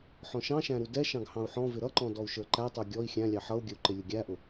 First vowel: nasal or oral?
nasal